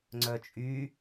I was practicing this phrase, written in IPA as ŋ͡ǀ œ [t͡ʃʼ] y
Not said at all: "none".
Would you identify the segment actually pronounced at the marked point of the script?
t͡ʃʼ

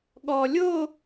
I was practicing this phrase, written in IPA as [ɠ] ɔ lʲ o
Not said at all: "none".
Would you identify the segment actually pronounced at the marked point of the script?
ɠ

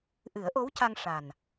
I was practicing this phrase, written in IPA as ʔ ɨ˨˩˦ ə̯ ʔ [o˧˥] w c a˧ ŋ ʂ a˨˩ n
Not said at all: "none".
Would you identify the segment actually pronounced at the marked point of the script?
o˧˥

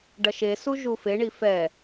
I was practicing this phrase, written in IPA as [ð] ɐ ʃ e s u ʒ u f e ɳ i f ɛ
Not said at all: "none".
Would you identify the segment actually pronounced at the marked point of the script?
ɖ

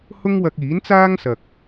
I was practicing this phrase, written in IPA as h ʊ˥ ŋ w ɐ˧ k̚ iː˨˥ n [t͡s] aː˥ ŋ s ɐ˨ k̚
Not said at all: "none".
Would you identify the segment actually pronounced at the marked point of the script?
t͡s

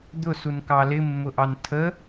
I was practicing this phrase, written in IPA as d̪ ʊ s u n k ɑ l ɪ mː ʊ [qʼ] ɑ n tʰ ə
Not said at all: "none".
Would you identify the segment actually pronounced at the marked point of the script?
ʔ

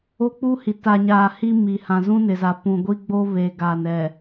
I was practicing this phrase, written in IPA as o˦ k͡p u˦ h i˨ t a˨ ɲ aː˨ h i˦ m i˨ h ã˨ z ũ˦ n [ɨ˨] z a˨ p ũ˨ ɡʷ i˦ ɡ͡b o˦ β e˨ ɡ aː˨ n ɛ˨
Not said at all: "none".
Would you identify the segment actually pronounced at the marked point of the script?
ɪ˨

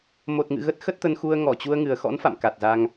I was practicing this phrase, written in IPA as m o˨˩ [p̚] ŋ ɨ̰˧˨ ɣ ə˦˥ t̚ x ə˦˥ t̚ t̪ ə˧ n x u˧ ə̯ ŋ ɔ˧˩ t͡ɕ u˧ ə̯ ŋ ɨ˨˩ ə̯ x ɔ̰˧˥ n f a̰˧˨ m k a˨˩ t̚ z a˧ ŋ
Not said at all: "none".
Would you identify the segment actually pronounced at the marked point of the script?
t̚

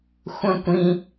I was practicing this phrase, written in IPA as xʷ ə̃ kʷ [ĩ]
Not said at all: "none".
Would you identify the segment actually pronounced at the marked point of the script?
ĩ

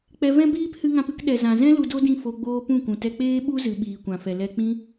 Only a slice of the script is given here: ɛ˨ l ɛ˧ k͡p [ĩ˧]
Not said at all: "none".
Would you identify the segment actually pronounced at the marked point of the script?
ĩ˦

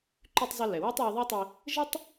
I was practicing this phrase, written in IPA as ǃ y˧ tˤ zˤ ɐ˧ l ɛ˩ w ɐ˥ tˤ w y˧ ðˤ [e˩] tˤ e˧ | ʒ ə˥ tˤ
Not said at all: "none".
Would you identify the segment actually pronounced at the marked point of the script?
e˥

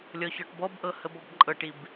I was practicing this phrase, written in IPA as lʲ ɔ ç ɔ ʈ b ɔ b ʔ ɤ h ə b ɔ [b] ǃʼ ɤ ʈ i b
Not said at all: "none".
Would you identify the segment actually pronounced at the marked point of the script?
b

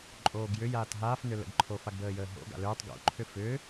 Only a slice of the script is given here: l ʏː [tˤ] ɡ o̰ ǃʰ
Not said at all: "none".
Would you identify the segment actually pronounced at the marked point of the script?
tˤ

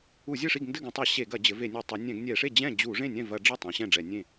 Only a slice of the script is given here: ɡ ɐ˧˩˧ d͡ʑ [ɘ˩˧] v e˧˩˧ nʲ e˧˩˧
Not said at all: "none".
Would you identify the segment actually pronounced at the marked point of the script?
ɘ˩˧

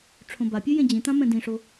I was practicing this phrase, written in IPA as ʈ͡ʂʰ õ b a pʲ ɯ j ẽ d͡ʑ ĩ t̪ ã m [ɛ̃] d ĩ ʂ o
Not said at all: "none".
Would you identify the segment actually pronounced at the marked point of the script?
ɛ̃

